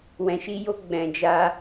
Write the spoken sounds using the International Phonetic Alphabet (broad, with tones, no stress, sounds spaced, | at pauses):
w ɛ̃˧ ʃ i˦ j o˦ ɡ͡b ɛ̃˧ d͡ʒ a˦